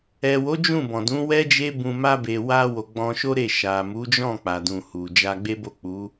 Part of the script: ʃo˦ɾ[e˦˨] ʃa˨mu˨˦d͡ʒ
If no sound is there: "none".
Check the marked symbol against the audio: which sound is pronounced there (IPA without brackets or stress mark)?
e˦˨